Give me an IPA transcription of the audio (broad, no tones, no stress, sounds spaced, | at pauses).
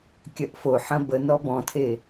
kʲ ɐ ʔ f o ħ ɐ̃ b ə n ɔ b ɔ̃ tʰ e